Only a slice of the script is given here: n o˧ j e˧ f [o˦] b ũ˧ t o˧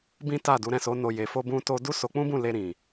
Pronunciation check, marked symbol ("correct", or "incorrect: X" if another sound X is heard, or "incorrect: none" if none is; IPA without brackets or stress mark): correct